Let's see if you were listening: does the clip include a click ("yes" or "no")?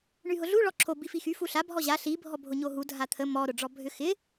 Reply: yes